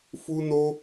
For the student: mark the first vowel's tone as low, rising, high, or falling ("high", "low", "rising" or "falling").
high